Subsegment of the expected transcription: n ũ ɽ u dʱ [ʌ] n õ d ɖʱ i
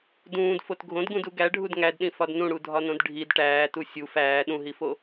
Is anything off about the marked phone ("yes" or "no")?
yes